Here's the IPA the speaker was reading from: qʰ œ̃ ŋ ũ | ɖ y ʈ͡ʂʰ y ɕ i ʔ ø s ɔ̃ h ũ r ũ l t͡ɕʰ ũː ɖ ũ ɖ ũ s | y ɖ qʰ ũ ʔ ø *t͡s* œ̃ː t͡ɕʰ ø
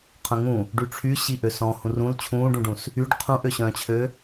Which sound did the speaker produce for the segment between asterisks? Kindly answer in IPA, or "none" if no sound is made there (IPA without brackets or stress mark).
ɕ